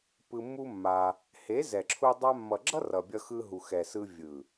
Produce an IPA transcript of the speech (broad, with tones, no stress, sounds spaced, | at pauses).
p ɯ˧ mː u˦ mː a˧ | h e˨˦ z ɛ˨ ǁʰ u˧ dˤ a˧ mː ʌ˨ ɡ͡ǁ ʌ˦ r ʌ˨ bʲ ʌ˧ x ɯ˧ ɦ u˨ x ɛ˨ s ɯ˧ vʲ ɯ˨